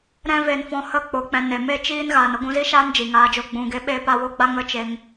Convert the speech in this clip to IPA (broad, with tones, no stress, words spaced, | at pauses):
ɾɛ̃˦ve˧nfɔ̃˧ hə˦˨ k͡po˧k͡pɛ̃˧ ne˨me˦˨ t͡ʃiː˦nɣaː˨n ə˦ɡʷũ˧zi˦ʃaː˦n d͡ʒi˨ŋaː˧d͡ʒo˧ ɡ͡bũ˨ɡe˧ɓeː˦p a˧wo˦ɡ͡ba˦ ŋə˦t͡ʃe˧ŋ